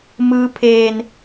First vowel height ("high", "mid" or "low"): high